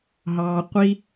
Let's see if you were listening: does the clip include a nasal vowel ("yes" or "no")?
no